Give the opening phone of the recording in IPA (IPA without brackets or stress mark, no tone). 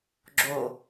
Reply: ɡ͡ǁ